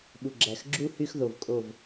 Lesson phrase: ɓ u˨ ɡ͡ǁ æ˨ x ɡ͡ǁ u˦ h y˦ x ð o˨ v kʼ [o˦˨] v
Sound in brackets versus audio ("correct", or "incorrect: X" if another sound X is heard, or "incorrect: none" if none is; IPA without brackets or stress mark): correct